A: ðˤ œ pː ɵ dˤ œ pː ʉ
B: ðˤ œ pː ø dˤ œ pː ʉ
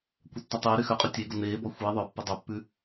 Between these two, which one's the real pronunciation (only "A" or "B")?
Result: A